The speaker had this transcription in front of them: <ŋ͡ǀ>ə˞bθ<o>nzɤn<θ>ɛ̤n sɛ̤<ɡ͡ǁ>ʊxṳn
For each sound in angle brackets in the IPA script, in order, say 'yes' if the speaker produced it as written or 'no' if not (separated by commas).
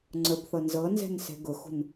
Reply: yes, no, no, no